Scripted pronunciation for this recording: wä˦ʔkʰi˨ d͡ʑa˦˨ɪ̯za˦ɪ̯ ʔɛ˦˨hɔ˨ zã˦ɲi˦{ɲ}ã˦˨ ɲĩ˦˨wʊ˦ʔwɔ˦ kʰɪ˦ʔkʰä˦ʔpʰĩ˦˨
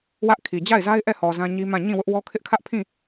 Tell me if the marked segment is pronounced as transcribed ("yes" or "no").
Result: no